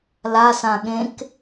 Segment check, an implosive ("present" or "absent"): present